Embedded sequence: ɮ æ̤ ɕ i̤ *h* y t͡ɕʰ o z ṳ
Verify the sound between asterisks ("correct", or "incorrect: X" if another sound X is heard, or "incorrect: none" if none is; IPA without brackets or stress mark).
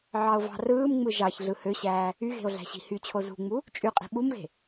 correct